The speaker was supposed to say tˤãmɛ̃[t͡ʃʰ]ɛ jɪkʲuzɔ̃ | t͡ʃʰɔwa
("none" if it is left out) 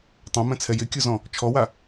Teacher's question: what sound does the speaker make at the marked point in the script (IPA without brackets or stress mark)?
t͡sʰ